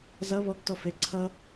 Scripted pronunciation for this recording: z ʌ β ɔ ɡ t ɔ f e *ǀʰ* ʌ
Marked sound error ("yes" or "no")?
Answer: no